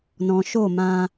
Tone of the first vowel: low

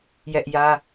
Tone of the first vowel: high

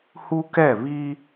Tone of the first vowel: high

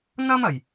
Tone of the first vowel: high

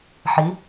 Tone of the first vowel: rising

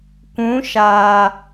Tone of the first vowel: rising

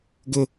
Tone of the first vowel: high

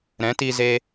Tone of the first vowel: rising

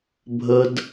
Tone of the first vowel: high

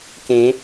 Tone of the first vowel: rising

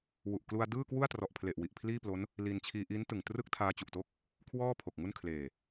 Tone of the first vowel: low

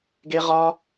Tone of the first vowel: high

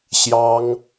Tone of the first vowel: high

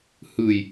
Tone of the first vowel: low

